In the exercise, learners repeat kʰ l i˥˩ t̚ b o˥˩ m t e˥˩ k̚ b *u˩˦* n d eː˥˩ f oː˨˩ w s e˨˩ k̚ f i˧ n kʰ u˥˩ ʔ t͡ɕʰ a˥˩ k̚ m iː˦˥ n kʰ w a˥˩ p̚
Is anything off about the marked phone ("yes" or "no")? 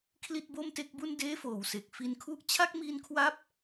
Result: yes